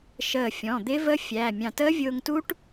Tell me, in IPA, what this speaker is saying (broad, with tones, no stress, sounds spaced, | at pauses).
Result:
ʃ əː˧˩ fʲ ɔ̃˩˧˩ d̪ ɪ˦˥ v ə˦˥ fʲ æ˩˧˩ mʲ ɑ̃˧˩ t əː˦˥ vʲ ʊː˧ ŋ t u˦˥ ʈ